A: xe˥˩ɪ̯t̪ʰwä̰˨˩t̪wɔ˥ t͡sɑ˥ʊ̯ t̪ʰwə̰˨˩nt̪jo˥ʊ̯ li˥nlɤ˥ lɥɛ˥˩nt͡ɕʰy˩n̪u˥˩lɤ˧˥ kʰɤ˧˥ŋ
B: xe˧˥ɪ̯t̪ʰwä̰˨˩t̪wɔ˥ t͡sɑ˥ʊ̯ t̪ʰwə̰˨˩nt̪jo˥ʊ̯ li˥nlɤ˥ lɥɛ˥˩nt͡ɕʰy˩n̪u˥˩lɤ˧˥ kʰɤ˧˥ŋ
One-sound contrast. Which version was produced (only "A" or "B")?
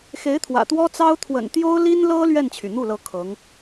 B